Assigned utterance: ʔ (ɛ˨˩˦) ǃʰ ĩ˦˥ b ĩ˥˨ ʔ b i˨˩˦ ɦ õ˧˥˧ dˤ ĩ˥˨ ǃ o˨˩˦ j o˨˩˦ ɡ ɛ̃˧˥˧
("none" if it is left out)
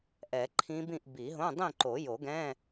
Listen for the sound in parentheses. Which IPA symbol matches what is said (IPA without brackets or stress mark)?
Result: ɛ˨˩˦